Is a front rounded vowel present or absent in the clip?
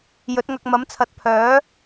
present